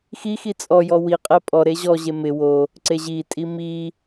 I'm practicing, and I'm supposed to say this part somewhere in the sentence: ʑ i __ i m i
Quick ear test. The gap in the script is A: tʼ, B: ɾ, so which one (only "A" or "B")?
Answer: A